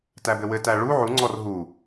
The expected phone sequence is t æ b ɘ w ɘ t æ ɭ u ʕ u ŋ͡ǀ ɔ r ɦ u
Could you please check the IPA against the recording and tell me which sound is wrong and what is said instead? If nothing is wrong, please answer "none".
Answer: none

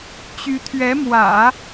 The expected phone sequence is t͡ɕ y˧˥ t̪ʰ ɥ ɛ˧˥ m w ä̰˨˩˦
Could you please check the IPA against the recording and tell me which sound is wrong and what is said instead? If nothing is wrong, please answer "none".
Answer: none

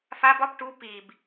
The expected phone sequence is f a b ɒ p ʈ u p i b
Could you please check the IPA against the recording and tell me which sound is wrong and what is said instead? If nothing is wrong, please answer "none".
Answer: none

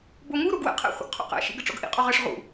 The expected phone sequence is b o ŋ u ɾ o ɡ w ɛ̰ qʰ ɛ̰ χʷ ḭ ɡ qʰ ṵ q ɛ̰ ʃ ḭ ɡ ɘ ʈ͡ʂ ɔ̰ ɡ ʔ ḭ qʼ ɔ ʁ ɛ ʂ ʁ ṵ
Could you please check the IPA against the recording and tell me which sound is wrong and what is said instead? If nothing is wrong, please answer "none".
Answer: ɛ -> ɘ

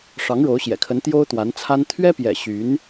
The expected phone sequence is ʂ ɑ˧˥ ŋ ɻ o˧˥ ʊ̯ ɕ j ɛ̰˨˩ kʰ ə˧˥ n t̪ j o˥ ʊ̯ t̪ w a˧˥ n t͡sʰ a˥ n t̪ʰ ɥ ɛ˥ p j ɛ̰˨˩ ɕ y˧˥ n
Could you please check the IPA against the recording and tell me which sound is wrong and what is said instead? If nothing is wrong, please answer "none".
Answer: none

